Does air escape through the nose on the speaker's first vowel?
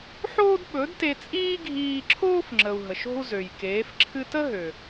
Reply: no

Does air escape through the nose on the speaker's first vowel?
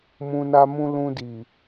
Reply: yes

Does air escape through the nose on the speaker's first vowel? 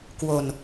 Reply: no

